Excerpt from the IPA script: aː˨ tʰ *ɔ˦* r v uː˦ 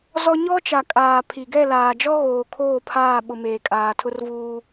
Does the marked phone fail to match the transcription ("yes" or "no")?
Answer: yes